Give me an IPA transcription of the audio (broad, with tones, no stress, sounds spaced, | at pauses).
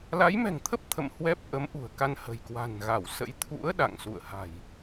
l a˨˦ j m ɛ̤˨˩ ŋ t̪ʰ ə˦˥ p̚ t̪ʰ ə̰˧˨ m h w ɛ˦˥ p̚ ʔ ə˨˦ m ʔ ṳ˨˩ ə̯ k a˧ n h ə̤˨˩ j k w a̤˨˩ n ɣ a˧˩ w s ə̰˧˥ j t̪ʰ ṵ˧˥ ə̯ ɗ a̰˧˨ ŋ s ṵ˧˨ ə̯ h a̤˨˩ j